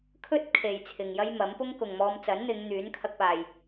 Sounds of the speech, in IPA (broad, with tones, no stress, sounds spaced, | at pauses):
kʰ ɵ˥ t̚ kʰ e˨ j t͡sʰ ɪ˨ ŋ j ɐ˥ j m ɐ˨˥ m p ʊ˥ ŋ k ʊ˨ ŋ m ɔː˧ m t͡s ɐ˨˥ n n̪ ɪ˨˧ ŋ n̪ yː˨˥ n kʰ ɐ˧ k̚ p aː˨ j